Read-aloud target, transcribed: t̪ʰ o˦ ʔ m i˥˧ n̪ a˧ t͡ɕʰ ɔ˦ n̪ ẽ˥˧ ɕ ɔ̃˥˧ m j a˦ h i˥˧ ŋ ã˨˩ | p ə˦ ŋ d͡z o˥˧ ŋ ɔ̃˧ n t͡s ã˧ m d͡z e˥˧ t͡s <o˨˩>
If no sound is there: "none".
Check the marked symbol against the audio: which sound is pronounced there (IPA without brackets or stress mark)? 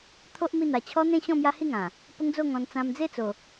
o˨˩